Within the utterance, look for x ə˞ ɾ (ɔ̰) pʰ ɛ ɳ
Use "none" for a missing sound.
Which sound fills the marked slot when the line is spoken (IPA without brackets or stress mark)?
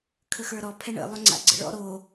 ɔ